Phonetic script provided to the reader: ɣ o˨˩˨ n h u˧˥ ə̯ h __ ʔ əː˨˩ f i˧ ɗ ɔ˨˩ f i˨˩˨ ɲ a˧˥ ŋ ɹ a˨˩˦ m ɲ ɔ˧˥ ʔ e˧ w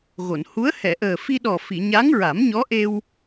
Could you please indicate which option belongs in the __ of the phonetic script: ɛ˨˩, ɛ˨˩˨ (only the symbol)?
ɛ˨˩˨